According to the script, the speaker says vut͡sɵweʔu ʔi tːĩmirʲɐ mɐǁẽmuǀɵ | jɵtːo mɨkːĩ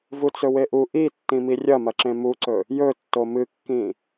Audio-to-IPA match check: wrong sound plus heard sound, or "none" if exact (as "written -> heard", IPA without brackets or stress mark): none